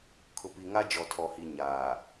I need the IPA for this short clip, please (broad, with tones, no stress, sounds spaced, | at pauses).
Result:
kʰ ʊ˨ p i˨ ŋ a˦ d͡ʒ ɔ˨ tʰ ɔ˨ h i˨ ɲ aː˨